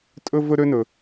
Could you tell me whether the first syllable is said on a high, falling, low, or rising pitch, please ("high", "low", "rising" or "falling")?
high